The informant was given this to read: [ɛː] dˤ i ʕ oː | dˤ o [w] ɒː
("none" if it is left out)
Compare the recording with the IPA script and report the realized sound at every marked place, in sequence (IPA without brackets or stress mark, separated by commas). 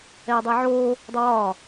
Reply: ɛː, w